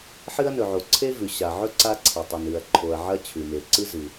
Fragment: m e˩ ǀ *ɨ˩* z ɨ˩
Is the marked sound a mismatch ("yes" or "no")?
yes